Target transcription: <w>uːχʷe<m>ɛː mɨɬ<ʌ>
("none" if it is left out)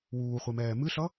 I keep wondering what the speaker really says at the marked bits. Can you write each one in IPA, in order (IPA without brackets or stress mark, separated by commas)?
w, m, ʌ